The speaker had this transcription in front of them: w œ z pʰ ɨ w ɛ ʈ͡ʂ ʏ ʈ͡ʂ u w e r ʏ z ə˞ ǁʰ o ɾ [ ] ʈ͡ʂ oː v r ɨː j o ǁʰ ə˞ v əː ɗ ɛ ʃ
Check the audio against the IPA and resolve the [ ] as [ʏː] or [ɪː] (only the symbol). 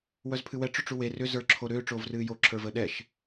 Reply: ʏː